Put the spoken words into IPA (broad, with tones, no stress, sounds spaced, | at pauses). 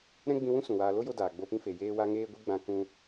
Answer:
ɾ ɛ̃˦ ɡ͡b ĩ˧ w ũ˦ s ũ˨ w aː˧ l o˦ j o˧ d aː˨ ɡ͡b o˧ p ĩ˦ f e˨ j eː˦ w a˦ ŋ eː˦ ɡʷ i˦ ɡ͡b ã˦ k ũ˦